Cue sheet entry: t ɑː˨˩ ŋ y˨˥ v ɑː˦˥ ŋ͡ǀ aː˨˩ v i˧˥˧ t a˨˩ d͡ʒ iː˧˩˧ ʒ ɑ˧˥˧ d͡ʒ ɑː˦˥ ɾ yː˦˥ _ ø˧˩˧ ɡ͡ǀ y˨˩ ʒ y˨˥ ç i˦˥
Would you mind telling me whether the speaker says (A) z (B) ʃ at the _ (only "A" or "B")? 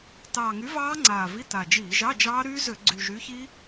A